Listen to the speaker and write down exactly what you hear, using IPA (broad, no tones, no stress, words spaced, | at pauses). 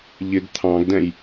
ʎɪɡ t̪ʰɑ̃ɡdɛ̃j